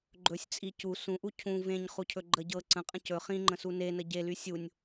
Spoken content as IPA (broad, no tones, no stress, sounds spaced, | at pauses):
ɡ͡ǃ ɵ sʲ t͡sʼ i c u s ũ ʔ u cʰ ũ v ẽ ɲ χ u cʰ ɵ ɡ͡ǃ ə ɟ ɤ ǀ ə̃ qʼ ə̃ c ɵ χ ĩ ŋ͡ǃ ə̃ s u n e n ə ɟ e l y sʲ u nʲ